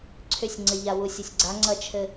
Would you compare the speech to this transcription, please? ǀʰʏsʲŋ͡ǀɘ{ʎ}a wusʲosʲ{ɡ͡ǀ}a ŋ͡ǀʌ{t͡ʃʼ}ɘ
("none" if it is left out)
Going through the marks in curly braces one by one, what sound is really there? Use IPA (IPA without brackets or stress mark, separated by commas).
ʎ, ɡ͡ǀ, t͡ʃʰ